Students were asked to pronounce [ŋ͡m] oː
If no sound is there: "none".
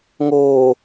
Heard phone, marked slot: ŋ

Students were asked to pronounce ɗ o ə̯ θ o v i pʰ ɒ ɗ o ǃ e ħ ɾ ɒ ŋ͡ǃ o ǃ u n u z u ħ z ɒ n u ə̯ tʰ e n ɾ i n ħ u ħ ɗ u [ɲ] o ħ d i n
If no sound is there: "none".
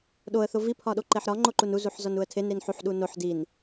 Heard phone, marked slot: n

